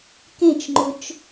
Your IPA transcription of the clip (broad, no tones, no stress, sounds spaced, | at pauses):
k ẽ t͡ʃ ŋ͡ǃ ʊ t͡ʃ